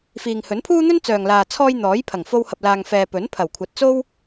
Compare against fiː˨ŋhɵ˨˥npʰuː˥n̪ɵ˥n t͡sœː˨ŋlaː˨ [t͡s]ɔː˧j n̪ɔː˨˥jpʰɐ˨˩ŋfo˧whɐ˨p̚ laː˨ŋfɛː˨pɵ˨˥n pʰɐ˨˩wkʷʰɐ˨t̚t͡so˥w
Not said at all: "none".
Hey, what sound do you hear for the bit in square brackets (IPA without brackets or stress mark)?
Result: t͡sʰ